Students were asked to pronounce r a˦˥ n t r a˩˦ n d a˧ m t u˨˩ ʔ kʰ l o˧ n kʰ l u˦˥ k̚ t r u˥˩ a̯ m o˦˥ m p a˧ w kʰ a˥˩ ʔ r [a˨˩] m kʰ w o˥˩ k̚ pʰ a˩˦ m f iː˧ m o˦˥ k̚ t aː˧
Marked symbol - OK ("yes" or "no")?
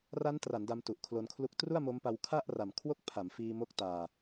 yes